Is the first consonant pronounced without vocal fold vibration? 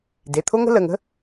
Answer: no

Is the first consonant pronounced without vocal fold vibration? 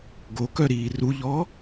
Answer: no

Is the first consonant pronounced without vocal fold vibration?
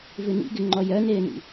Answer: no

